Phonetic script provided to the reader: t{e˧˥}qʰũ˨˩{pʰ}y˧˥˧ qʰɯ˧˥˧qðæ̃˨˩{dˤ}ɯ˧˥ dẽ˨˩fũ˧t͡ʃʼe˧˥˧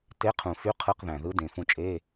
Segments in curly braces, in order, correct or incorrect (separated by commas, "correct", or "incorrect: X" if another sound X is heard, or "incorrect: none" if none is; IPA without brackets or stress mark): incorrect: e˧˥˧, incorrect: f, incorrect: ð